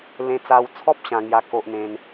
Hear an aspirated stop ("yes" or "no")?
yes